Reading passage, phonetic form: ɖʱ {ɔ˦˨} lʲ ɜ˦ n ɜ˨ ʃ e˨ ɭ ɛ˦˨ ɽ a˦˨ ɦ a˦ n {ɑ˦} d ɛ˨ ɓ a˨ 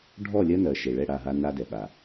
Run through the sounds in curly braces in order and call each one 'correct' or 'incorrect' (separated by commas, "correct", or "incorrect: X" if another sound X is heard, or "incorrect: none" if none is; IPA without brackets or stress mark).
correct, incorrect: a˦